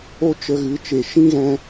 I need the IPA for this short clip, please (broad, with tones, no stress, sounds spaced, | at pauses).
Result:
o˦ t͡ʃ ə˧ ɣ ɨ˨˦ t͡ʃ e˨ ʃ ĩ˦ ɣ ɛ̃˧